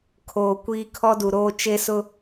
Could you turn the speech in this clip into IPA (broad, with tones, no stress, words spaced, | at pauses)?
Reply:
kʰoː˨ kʷiː˨ kʰɔ˦du˨ɾoː˦ t͡ʃe˦ sʊ˦